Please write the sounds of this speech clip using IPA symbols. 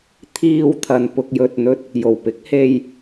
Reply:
t̪ʰ iː˧ w t̪ʰ ɐ˨ n p ʊ˧ k̚ j ɵ˧ t̚ n̪ ɵ˥ t̚ | j o˨˩ w p ɪ˨˥ k̚ h e˧ j

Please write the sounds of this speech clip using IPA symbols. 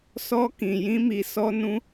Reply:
s ɔ˧ k ĩ˨ j ĩ˧ m i˨ s ɔ˧ n ũ˧

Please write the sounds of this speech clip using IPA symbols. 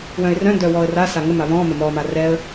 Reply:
w œ̃ ɪ̯ r œ̃ n d œ w ɔ ə̯ r a s a ŋ ə m a β ɔ̃ m ə m ɔ m a r ɛ ə̯

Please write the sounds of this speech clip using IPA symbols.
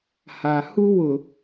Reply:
h a˨ h u˦ w ʊ˨

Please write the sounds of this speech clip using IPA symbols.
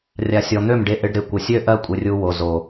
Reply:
rʲ a˧ sʲ ɔ˨ n̪ ø˦˨ m ɖ e˧ ʔ ɪ˧ ɖ ɾ ɪ˨ kʷ ɪ˨ sʲ ø˦ ʔ ɜ˦ kʷʼ ɪ˧ rʲ u˧ w o˨ z o˨

